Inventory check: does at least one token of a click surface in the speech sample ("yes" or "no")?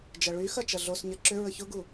yes